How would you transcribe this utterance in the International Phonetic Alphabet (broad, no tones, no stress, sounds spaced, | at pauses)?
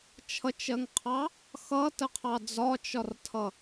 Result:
t͡ʃʰ ʌ t͡ʃ ɜ ŋ qʰ ɑ | x ʌ t ə qʰ ɑ d͡z ɒ t͡ʃ ɒ r tʰ ʌ